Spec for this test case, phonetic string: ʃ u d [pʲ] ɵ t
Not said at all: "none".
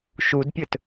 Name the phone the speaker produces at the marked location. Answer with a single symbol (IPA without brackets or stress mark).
pʲ